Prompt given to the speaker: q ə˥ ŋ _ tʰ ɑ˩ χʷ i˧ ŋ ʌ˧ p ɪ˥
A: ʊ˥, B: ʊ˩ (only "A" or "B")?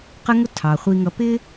A